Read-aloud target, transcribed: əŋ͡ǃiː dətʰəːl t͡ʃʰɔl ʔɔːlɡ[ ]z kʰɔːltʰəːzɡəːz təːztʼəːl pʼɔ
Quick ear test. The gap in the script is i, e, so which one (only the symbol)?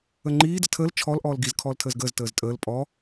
i